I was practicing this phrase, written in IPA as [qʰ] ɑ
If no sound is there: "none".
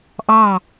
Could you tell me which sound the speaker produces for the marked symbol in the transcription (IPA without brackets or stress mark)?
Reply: ʔ